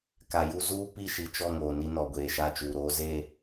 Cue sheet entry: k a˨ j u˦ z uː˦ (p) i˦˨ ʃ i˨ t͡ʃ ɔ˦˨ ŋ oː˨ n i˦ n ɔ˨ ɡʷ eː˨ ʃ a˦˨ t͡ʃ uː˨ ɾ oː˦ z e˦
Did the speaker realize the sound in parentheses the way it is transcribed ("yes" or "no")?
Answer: yes